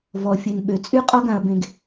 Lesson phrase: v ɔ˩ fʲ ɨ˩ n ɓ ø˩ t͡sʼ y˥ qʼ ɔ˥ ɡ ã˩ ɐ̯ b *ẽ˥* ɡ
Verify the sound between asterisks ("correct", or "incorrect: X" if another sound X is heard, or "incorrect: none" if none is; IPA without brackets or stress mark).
incorrect: ẽ˩